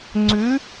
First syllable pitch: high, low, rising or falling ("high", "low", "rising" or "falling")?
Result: rising